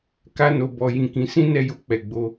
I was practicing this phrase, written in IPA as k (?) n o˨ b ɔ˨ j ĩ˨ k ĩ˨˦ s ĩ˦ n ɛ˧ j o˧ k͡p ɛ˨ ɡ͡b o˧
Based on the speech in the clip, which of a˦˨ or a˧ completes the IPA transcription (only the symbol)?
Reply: a˧